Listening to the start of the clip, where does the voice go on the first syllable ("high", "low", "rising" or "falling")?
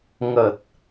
low